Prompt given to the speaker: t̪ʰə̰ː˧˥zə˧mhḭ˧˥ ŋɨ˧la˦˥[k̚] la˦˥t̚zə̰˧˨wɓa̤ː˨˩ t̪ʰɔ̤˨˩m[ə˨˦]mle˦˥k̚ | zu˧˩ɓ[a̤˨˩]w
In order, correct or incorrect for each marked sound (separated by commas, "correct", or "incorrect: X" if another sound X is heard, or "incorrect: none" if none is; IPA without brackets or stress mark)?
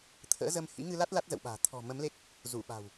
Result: incorrect: t̚, correct, correct